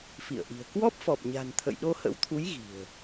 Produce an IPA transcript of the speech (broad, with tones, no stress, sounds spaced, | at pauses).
f ḭ˧˨ ə̯ ʔ i̤˨˩ ə̯ k w ɔ˦˥ p̚ f ɔ˨˩ p̚ ɲ a̤˨˩ n t̪ʰ ə̰˧˨ j ɗ o˧ h ə̰˧˥ w t̪ʰ u˨˦ j ɣ i̤˨˩ ə̯